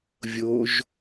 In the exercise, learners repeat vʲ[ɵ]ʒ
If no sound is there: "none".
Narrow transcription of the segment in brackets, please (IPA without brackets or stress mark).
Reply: o